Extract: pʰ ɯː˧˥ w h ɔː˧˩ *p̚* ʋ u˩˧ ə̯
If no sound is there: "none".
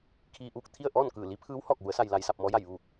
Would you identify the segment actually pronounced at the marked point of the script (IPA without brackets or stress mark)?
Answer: k̚